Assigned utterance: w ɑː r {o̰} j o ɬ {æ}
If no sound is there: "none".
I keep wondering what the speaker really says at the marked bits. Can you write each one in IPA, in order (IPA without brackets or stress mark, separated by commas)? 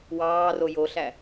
o, æ